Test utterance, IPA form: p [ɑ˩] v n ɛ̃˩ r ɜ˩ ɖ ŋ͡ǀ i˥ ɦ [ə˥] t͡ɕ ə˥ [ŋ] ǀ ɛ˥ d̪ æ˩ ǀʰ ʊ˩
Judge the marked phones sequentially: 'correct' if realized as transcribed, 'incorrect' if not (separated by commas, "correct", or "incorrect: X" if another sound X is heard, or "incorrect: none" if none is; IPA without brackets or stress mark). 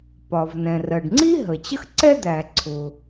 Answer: incorrect: ɒ˩, incorrect: ə˩, incorrect: x